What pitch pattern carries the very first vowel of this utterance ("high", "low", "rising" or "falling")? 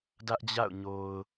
high